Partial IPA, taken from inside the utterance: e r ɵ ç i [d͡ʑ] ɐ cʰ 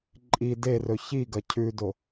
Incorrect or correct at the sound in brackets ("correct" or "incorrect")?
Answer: incorrect